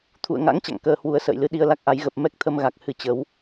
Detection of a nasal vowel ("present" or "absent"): absent